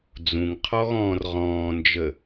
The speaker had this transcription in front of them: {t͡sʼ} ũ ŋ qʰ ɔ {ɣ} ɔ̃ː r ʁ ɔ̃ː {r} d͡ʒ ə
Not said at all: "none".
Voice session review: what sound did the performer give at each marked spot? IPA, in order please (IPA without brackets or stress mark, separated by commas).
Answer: d͡z, ɣ, n